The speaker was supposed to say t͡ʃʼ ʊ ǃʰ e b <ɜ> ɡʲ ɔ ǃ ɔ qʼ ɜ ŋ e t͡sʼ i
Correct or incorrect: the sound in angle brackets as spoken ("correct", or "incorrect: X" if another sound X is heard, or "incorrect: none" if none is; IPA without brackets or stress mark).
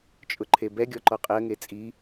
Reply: incorrect: ɛ